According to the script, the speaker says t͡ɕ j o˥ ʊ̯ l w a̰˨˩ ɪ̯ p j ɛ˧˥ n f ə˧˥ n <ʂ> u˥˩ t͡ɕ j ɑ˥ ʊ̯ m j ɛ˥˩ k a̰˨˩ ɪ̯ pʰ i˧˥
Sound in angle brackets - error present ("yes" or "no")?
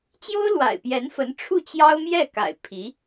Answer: yes